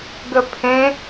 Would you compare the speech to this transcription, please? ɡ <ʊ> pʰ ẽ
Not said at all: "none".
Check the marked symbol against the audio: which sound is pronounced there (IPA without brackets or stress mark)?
ə